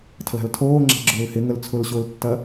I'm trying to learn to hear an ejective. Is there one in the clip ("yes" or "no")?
no